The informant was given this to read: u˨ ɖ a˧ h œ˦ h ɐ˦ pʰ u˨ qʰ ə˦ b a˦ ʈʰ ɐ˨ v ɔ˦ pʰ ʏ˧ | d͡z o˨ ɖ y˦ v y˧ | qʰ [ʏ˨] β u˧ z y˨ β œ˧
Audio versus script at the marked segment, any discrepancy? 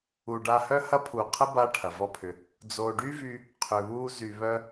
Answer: no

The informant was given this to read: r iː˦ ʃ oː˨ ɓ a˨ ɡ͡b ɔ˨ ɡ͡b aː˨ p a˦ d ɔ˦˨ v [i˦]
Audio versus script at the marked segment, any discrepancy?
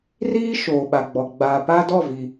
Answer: yes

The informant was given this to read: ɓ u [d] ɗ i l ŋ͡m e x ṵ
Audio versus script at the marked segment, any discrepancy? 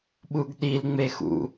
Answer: yes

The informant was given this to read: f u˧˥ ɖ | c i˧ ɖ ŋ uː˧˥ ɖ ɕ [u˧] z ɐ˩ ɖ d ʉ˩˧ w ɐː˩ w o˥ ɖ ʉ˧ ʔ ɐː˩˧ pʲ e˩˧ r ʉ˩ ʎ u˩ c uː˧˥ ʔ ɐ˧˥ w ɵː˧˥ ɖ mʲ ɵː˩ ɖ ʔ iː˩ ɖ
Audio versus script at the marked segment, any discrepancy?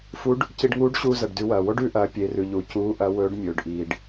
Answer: yes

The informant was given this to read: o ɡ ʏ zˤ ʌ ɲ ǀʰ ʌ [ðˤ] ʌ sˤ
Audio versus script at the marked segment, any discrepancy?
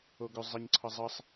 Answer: yes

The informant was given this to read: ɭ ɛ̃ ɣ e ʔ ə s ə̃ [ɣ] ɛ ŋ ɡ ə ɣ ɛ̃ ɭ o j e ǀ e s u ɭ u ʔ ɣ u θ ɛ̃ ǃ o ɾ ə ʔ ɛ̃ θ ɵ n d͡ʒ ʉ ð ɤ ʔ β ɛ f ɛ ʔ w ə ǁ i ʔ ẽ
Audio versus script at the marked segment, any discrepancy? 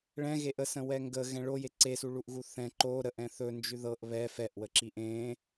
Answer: yes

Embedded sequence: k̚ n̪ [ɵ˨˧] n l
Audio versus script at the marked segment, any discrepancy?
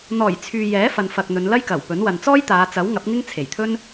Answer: no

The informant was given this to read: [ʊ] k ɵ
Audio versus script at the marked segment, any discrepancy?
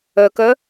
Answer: yes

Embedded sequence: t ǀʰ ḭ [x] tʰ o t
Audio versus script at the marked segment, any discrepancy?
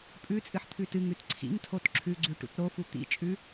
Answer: yes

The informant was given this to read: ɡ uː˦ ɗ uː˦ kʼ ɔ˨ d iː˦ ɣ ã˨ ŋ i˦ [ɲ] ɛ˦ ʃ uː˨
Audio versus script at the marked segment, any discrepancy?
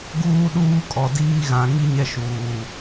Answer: no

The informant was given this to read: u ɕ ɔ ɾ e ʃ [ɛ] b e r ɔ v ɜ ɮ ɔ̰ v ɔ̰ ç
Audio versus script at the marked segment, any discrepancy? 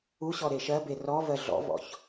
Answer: yes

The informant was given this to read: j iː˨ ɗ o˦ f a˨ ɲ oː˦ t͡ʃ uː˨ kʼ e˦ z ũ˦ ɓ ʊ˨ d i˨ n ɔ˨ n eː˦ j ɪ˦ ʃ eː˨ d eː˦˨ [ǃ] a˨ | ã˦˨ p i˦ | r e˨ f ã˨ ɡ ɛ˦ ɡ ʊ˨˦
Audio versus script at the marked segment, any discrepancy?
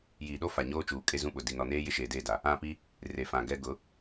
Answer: yes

